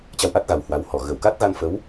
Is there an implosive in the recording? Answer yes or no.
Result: no